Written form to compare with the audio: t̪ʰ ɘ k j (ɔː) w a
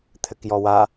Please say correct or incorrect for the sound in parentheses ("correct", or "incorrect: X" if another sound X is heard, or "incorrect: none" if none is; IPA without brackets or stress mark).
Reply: incorrect: ɔ